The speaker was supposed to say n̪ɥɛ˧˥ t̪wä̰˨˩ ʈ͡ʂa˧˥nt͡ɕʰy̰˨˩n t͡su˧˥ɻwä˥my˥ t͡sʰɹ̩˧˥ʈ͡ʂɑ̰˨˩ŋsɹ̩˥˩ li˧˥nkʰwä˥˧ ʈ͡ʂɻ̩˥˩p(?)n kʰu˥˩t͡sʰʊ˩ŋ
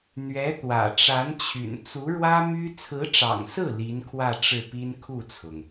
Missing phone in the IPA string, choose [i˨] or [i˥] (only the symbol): i˥